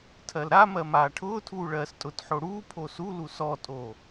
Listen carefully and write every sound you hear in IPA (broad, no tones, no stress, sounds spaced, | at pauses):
tʰ ɜ l ɾ a m ɜ m aː ʈʰ ʊː tʰ uː ɭ ɜː s tʼ ʊ t ħ o ɽ uː pʰ o s u l u s ɔ tʼ o